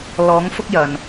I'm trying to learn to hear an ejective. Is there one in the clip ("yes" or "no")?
no